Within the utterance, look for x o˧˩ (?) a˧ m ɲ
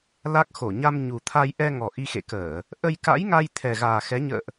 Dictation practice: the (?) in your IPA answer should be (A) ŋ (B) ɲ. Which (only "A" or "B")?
B